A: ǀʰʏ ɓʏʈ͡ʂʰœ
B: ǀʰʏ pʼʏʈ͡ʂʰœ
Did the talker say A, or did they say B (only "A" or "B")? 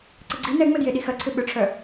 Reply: A